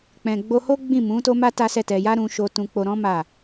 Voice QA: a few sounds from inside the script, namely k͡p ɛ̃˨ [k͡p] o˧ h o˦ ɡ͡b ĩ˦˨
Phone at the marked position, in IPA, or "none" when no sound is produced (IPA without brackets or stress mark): ɡ͡b